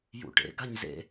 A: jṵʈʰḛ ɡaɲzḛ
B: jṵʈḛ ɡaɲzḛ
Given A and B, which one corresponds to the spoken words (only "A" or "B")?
B